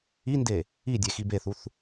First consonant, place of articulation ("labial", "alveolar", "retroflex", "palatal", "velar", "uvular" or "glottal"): alveolar